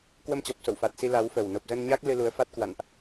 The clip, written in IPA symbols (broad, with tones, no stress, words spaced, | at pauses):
kwə˧mt͡ɕɔ˨˩p̚ so̰˧˨wfa˨˩t̚si˧ la˨˦wfə˨˩w no˨˩p̚zə˧nɲa˦˥k̚ lɨ˧lu˨˦ə̯fa˦˥t̚kwa̰˧˨nʔ